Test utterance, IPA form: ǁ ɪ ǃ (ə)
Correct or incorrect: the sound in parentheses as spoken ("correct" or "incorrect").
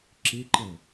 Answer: correct